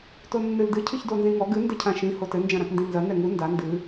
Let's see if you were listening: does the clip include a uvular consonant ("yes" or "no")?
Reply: no